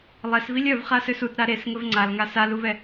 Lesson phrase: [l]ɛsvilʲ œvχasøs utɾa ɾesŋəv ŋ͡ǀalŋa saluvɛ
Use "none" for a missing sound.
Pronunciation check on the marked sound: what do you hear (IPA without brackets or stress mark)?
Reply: lˠ